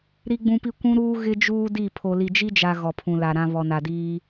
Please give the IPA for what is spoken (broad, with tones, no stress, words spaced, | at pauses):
ɾi˦ɡ͡bũ˦pi˦ kʷũ˦ɾuː˦ ɣɪ˦ d͡ʒuː˦di˦˨ pʰo˨li˨d͡ʒi˦d͡ʒa˨ ɣɔ˨pʰũ˨la˨ ɾã˦ βɔ˨na˨diː˦